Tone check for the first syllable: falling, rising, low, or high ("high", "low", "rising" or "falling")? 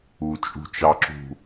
low